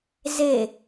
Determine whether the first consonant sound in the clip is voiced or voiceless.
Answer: voiced